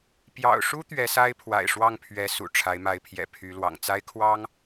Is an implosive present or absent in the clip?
absent